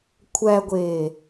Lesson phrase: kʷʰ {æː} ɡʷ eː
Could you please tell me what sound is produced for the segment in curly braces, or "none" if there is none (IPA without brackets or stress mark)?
æ